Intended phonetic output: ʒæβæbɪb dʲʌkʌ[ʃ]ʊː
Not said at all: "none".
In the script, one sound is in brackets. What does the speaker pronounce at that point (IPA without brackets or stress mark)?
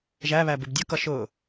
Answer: ʃ